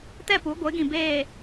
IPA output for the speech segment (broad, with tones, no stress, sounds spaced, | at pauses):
t ɛ˦˨ p u˨˦ ɡʷ ɪ˨˦ ɡ ĩ˨ b eː˨